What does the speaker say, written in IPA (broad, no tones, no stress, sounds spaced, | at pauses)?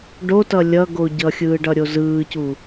ɖ o t ʌ lʲ ʌ ɡ o ɟ ʌ xʲ ɯː ɖ ʌ ɾʲ o z ɯː c u